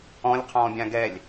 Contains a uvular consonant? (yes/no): yes